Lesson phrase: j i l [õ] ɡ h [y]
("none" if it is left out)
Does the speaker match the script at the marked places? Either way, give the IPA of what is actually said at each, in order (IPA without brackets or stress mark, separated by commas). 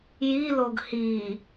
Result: o, i